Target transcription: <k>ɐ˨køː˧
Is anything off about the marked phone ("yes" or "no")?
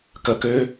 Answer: no